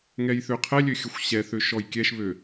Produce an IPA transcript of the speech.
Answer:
ŋ ɛ j θ ø qʰ ɛ lʲ ø xʲ ə xʷ ɕ ɛ θ ø ʃ ɔ j kʲ ɛ ʃ β ø

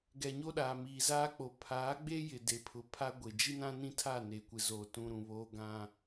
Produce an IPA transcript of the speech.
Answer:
ɡ ɛ˨ ɲ o˦ ɗ aː˨ m i˨ z a˦ k͡p o˨ pʰ aː˨˦ ɡ͡b e˦ j ɪ˨ d e˨˦ pʰ ʊ˨˦ pʰ a˦ ɡʷ e˨ d͡ʒ i˦ n ã˦ n ĩ˦ tʰ a˦˨ n e˨ kʷ ɪ˨ z o˨ t ũ˨ ɾ ũ˨ β oː˦ ɡ ã˦

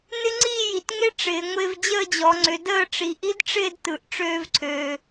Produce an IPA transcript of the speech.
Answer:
n ɪ˦˥ ŋ͡ǀ iː˥˨ j i˩ t ŋ e˦˥ ʈ͡ʂ ɪː˩˧ ŋʷ ɪː˧ v d͡ʑ əː˥˨ d͡ʑ ɔ˩˧ ŋ͡ǀ ʏ˩˧ d əː˥˨ ʈ͡ʂ i˩ ʔ i˦˥ d ʈ͡ʂ ɪː˥˨ d t ɯ˩ ʔ ʈ͡ʂ øː˧ v ǀʰ øː˩

